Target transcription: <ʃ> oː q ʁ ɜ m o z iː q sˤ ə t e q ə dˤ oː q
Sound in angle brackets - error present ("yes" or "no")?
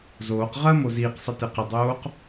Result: yes